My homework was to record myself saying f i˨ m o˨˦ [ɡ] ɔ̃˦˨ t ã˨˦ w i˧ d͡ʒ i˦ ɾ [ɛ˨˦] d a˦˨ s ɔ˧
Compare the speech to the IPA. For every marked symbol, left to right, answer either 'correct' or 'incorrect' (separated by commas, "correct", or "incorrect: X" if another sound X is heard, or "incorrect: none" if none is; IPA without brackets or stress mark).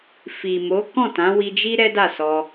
incorrect: k, incorrect: ɛ˦